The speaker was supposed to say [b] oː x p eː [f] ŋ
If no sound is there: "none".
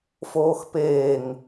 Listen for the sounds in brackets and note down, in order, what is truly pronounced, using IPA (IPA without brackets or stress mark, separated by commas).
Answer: f, none